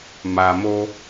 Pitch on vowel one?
low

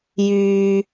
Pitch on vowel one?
low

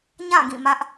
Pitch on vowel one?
falling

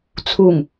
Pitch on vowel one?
low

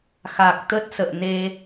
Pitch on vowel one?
low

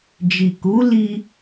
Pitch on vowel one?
low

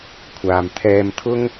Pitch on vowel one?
low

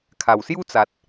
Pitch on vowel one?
low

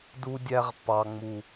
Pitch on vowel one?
high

